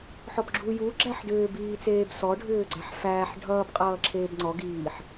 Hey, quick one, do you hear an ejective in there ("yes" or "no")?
yes